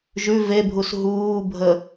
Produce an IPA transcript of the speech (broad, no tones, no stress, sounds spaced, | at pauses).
ʒ ʉ v e bʱ u s ɦ uː bʱ ə